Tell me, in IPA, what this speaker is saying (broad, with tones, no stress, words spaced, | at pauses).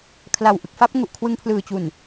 kʰla˨˩wʔɯ˨˩k̚fa˥˩p̚ ŋu˨˩ʔkʰwɯ˧ŋpʰlɯː˨˩t͡ɕu˨˩n